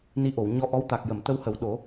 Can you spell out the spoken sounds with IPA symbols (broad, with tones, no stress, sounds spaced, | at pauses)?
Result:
n i˧˥ ʔ o˨˩˨ w ɲ ɔ˧˥ ʔ ɔ˧˥ w t̪ a˨˩ k̚ j ə˨˩˨ m t̪ ə˧ w h ə˨˩˦ w ɗ o˨˩˦